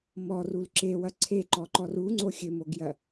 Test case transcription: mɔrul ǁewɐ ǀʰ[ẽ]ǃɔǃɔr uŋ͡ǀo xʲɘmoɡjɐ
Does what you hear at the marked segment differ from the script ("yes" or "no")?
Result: yes